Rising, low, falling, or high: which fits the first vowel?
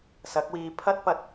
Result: rising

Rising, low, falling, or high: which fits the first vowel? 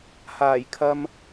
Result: low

